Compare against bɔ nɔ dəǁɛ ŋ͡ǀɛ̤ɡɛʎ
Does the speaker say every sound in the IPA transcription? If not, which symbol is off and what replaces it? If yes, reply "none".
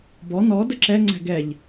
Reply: none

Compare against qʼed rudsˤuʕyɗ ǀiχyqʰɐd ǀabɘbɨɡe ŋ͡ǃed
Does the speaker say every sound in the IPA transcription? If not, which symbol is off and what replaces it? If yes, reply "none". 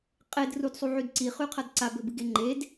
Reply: ɗ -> d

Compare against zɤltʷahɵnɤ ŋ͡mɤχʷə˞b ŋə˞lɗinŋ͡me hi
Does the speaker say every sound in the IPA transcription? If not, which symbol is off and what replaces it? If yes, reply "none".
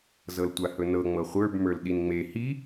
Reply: ŋ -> m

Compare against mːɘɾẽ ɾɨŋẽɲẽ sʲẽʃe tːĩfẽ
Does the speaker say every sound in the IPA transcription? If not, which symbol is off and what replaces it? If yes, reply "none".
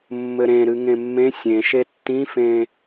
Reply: ɲ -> mː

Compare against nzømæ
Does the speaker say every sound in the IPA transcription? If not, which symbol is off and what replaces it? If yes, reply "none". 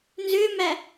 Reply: none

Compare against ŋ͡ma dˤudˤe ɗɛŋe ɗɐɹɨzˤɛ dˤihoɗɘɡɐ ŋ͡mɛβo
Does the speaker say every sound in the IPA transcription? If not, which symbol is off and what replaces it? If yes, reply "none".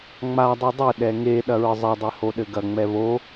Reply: none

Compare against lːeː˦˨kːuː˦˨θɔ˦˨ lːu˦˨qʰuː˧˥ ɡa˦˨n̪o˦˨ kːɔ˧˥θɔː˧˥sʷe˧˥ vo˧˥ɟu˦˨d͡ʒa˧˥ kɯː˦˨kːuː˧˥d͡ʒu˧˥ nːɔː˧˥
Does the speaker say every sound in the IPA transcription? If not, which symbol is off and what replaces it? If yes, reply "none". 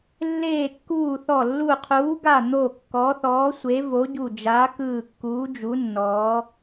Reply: none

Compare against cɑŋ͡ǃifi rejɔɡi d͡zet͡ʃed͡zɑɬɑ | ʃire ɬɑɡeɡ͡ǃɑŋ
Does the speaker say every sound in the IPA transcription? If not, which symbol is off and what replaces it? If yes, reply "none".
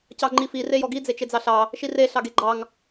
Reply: none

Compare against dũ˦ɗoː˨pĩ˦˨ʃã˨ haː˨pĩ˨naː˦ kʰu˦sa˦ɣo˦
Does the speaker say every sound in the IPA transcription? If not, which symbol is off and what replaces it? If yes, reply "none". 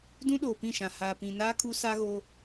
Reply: none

